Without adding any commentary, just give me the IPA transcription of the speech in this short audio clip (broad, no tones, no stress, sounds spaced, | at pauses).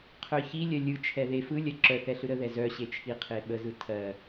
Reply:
qʰ œ ç i lʲ ɜ lʲ ɯ t͡ʃʰ ɛ ð e f ɯ lʲ ɜ ǁ œ θ ɛ ɬ ɯ ɾ ə ð ɛ z œ ɕ e t͡ʃʰ i qʰ e ɓ ə z ɯ tʰ ɜ